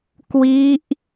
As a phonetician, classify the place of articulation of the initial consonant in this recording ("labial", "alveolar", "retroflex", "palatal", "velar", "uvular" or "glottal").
velar